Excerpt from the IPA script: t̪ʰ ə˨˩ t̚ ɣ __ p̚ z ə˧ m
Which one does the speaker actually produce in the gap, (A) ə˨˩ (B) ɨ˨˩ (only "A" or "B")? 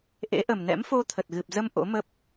B